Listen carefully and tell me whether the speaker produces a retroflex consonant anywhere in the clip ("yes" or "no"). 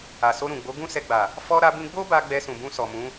no